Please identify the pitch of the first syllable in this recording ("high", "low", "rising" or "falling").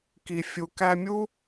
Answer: low